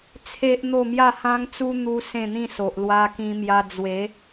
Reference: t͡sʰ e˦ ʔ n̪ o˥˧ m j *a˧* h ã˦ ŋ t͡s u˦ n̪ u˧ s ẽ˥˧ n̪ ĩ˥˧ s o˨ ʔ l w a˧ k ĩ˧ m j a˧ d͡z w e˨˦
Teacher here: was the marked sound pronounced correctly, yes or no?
no